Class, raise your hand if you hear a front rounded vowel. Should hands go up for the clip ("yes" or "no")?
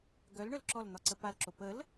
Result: yes